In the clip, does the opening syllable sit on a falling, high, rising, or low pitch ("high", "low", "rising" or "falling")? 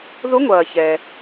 rising